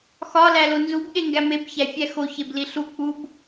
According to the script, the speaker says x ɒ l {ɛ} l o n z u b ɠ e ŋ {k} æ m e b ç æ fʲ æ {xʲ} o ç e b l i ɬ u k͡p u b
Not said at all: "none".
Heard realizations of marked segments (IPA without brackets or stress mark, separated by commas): æ, ɡ, x